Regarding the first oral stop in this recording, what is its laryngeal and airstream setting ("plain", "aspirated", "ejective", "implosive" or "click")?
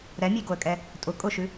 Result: plain